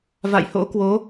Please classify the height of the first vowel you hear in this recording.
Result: low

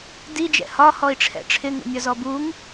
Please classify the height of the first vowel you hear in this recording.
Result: high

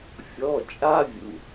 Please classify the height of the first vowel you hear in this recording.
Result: mid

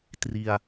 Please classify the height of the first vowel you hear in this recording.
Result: high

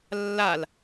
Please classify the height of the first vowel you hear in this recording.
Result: low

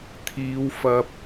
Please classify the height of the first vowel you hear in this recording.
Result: high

